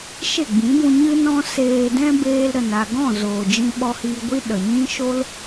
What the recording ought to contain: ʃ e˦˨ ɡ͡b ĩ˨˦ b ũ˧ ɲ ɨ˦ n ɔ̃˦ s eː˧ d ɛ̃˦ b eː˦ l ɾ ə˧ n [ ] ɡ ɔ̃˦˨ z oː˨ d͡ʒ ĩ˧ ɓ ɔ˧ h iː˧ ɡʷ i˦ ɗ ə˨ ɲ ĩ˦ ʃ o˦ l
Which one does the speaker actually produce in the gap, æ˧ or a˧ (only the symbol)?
a˧